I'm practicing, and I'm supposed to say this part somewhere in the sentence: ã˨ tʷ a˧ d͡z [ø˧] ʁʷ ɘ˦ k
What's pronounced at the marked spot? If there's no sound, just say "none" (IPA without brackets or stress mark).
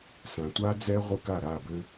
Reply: ɛ˧